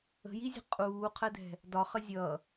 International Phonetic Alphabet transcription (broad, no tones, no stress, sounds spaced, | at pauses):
ə̤ j i zʲ ə̤ qʼ uː qʰ ɜ d ɛ̤ | d ɒ χ ə zʲ ʌ